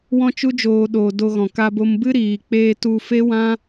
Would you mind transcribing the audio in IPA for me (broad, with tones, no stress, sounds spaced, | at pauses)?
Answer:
w ɔ̃˦ t͡ʃ u˦ d͡ʒ oː˧ ɗ o˨ d o˧ ɣ ɔ̃˨ k a˧ b o˧ m b ɨ˦ ɾ iː˨ k͡p eː˧ t u˧ f e˦ w ã˦